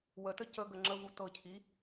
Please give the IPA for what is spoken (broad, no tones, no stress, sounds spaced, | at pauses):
w ə t ə c ə ɡ ə ŋ͡ǁ ə v u t ɤ cʰ i